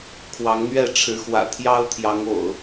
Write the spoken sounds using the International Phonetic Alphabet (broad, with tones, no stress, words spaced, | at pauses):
kʰwɑ˨˦ŋn̪ɥɛ˥˨ʈ͡ʂʰɻ̩˨˦xwä̰˨˩ t̪ʰjɑ˦ʊ̯t̪ʰjɑ˨˦ŋo̰˨˩ʊ̯